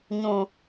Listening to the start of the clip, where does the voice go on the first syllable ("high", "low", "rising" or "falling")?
high